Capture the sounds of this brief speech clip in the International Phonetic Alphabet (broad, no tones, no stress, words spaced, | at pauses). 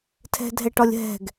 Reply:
tʰɛ̤dʱɛʈɒlʲɦɛ̤ɡ